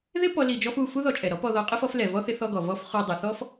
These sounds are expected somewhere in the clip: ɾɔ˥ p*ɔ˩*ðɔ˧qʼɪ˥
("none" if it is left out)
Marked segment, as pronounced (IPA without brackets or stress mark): ɔ˧